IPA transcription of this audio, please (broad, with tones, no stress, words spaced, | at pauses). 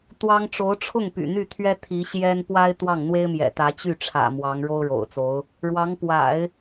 t̪wɑ˥ŋ ʈ͡ʂo˧˥ʊ̯ʈ͡ʂʰʊ˥˩ŋpy̰˨˩ n̪y˥˩t̪ʰɥɛ˥ t̪ʰi˧˥ ɕjɛ˥n pwa˥ɪ̯ t̪wɑ˥˩ŋn̪we˥ɪ̯ mjɛ̰˨˩t̪ä˧˥ t͡ɕy˥˩ʈ͡ʂʰä̰˨˩ mwɑ˧˥ŋɻo˥ʊ̯ ɻo̰˨˩ʊ̯t͡so˧˥ʊ̯ | ɻwɑ˧˥ŋ pwa̰˨˩˦ɪ̯